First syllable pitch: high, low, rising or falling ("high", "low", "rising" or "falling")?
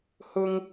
high